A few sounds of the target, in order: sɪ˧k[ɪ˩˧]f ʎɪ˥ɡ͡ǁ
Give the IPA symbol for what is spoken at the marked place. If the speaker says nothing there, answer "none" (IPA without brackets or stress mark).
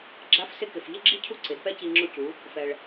ɪ˩